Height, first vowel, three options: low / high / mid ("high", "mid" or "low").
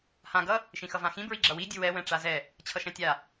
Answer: low